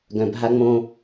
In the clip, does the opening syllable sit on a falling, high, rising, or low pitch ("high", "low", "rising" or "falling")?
low